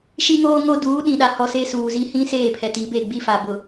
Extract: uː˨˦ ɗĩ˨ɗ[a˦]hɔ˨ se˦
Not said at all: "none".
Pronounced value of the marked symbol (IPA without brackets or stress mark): a˨